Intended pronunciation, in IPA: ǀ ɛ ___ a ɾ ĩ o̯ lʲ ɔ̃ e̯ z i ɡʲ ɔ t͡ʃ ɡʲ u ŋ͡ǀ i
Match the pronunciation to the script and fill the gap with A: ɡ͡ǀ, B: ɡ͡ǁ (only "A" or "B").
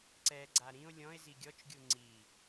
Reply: A